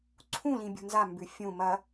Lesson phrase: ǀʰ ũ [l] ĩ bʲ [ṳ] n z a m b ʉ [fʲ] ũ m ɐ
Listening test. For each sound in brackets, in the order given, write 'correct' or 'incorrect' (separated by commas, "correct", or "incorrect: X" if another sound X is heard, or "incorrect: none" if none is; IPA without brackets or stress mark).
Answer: correct, correct, correct